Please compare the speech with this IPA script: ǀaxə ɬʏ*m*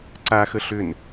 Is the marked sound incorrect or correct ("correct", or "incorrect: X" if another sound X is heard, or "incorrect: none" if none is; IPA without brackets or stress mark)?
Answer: incorrect: n